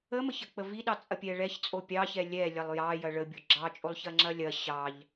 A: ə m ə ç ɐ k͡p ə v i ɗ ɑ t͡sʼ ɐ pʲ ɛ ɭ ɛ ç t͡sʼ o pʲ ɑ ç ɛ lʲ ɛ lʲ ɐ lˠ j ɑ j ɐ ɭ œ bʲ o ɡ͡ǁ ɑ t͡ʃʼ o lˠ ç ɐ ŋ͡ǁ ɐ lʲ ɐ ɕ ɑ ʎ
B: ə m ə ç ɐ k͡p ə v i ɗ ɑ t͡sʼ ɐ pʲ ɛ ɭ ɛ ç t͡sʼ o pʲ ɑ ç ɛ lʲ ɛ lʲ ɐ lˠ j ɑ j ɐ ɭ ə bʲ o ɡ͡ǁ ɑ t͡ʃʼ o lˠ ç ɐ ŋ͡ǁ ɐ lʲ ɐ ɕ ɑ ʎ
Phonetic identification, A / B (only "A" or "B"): B